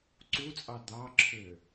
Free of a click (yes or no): no